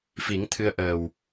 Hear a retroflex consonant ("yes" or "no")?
no